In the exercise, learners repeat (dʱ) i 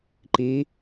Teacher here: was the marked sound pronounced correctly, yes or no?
no